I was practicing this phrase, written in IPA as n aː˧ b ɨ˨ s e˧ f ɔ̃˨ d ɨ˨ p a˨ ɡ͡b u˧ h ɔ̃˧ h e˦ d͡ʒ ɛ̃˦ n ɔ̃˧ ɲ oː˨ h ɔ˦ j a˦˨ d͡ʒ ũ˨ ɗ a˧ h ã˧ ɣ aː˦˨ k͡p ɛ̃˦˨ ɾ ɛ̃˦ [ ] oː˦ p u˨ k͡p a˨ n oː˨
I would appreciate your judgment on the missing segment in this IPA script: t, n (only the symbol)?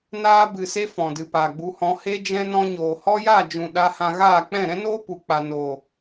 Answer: n